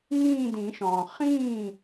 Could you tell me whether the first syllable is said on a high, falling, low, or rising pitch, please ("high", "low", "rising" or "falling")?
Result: falling